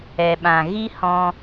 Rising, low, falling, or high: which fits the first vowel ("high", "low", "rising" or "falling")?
low